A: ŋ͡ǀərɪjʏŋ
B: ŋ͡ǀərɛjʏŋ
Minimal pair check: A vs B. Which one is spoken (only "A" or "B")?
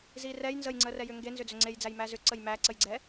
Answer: B